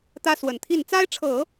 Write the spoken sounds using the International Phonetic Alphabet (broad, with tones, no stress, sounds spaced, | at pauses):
t̪ ä˥ s w ə˨˩ n t̪ʰ i˥˩ n t͡s a˥ ɪ̯ ʈ͡ʂʰ ɤ˨˩˦